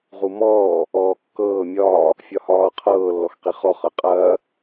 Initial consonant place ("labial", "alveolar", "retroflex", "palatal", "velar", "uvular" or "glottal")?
uvular